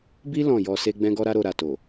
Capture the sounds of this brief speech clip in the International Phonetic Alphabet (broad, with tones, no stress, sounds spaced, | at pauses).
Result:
b i˦ l ɔ̃˦˨ j ɔ˧ s e˦ ɡ͡b ɛ̃˦ ɡ ɔ˦ ɾ a˦ ɾ o˧ ɾ a˨ t o˨